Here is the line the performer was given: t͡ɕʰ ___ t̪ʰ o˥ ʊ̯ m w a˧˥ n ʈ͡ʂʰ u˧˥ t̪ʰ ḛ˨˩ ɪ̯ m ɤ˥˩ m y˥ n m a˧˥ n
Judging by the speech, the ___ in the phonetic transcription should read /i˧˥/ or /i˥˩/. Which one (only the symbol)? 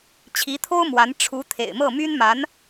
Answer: i˧˥